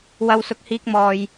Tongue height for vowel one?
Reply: low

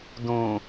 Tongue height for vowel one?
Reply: high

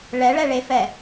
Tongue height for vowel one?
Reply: mid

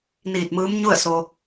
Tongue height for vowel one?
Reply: high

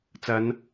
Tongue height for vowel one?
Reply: low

